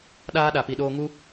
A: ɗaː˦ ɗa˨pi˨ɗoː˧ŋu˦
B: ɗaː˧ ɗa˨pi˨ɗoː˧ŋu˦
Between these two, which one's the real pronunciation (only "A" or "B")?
A